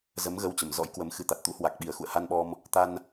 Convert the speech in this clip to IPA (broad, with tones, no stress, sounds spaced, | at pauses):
z ə˨˦ m ɣ ə˧ w t͡ɕ ə˨˩ m z ɔ̰˧˥ j k w ə˨˦ m x ɨ˨˦ t̪ a˨˩ t̚ t̪ ṵ˧˥ h w a˨˩ k̚ ɓ i˨˩ ə̯ x ṵ˧˨ ə̯ h a˧ n ɓ ɔ˧ m | t̪ a˧ n